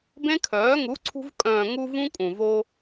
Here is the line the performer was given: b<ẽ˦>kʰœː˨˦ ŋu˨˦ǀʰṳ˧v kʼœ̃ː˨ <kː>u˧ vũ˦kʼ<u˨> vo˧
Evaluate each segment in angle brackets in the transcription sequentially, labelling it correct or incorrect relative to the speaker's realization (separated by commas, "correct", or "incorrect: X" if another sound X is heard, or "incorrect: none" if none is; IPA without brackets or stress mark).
correct, incorrect: ŋ, incorrect: ũ˨